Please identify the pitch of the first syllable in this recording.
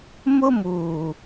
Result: high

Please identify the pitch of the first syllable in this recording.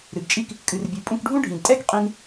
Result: low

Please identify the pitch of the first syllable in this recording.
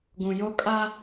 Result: low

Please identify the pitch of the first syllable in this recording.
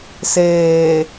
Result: low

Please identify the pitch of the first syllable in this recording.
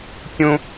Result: high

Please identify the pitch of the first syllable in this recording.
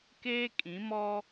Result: high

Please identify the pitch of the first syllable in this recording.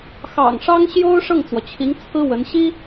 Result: low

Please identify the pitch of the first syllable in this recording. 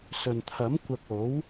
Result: low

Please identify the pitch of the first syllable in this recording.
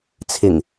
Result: low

